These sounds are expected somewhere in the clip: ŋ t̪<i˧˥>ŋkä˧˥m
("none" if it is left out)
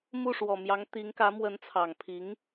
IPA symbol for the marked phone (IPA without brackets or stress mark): i˧˥